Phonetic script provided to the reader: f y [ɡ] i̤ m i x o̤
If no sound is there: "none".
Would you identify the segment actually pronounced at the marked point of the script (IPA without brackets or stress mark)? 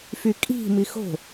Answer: kʼ